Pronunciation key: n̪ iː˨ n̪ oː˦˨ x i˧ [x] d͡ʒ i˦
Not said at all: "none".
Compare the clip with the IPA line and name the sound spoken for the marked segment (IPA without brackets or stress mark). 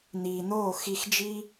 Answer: x